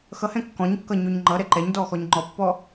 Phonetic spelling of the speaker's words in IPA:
xʌhɛ̃ kːɔ̃ɲkːʌ ɲoɲŋ͡ǃʌɾɛ ǃɛɲdɔ xɔɲŋ͡ǃɔpːɔ

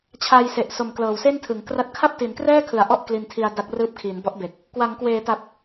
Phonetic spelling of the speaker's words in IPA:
t͡ɕʰa˧j se˨˩ʔso˨˩mklɤː˨˩w se˥˩ntʰɯ˩˦ŋ kra˦˥t̚ kʰa˥˩p̚ti˩˦nkrɛː˥˩kʰɯ˩˦a̯ ʔɔ˥˩ʔkli˧ntʰi˧a̯ da˦˥k̚rɯː˦˥p̚kʰiː˩˦n bɔ˦˥ʔbe˨˩k̚ | kwa˩˦ŋkweː˩˦ta˨˩p̚

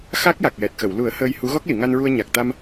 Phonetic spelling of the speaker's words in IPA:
xa˦˥k̚ja˨˩k̚jɛ˨˩t̚xə˨˩˨w lu˨˩˦ə̯ həː˧jhu˧˥ ɣɔ˦˥k̚li˨˩˨ŋa˧nɹu˧ə̯ ɲa˨˩k̚t̪a˧m

